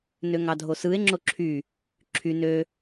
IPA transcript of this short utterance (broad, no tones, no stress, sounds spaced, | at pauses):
n ø ŋ ɑ dʱ o s ɯ e̯ ŋ͡ǁ o ǁʰ y | ǁʰ y n ø